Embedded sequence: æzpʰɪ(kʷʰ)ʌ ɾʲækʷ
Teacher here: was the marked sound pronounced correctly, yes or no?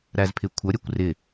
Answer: yes